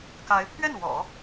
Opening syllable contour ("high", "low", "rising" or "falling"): rising